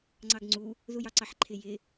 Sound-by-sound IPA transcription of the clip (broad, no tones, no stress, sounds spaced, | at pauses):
ŋ͡ǀ ɑ ɡ ŋ͡ǀ u | ð u j ɑ ǀ ɑ ħ ǃʰ ɪ j ɪ